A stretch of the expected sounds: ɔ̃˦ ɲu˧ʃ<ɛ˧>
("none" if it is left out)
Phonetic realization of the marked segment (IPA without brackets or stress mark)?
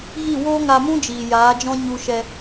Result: ɛ˧